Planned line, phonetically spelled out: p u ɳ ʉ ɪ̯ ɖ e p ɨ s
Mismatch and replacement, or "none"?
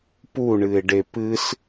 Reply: ʉ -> ɨ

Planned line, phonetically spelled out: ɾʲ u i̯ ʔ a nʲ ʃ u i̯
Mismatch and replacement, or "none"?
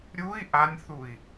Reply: ʃ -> θ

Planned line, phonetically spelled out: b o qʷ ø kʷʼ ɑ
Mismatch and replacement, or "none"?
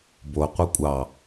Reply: ø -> œ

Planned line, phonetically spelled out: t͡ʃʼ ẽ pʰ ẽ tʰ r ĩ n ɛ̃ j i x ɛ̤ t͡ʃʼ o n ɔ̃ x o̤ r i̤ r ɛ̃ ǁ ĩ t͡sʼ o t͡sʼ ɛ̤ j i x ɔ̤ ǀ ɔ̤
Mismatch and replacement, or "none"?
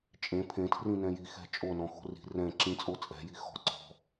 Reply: none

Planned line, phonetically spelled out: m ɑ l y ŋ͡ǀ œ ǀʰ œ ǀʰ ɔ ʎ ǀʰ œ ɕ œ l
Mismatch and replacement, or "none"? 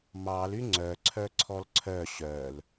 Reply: ʎ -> l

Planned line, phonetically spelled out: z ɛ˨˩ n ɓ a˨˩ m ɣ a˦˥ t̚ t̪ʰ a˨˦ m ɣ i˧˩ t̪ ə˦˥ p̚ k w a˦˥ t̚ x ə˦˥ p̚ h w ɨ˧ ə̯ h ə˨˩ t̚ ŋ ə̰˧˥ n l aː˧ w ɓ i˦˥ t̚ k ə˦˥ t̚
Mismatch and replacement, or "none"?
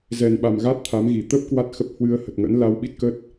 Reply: none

